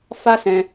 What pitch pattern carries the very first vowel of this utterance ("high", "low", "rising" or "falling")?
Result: high